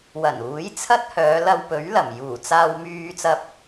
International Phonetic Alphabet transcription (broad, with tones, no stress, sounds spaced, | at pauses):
w ɐ˨˩ n uː˨˥ j t͡sʰ ɐ˥ t̚ h œː˨˧ l ɐ˧ w p ɵ˨˥ ɥ l ɐ˨˩ m j uː˨˩ t͡s aː˧ w m yː˧ t͡s ɐ˧ p̚